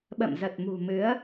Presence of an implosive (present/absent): present